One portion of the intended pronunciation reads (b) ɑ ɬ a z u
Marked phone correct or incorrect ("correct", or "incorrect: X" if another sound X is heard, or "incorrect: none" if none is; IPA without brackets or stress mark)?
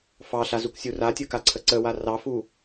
incorrect: f